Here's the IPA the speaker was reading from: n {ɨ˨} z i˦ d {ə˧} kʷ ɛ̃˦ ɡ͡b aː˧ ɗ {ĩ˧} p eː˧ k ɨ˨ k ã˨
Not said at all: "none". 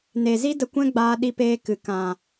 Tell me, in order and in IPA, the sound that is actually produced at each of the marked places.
e˨, ə˧, i˧

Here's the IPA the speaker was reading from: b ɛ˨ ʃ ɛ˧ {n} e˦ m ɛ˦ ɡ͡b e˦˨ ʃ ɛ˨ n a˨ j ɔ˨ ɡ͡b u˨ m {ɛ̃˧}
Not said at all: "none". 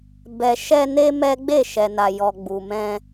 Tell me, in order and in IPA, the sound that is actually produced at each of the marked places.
n, ɛ̃˧

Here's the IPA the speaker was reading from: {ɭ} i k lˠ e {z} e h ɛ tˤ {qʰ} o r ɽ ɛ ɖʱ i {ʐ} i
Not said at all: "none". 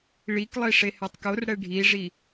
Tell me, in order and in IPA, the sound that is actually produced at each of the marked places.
ɭ, ʂ, k, ʐ

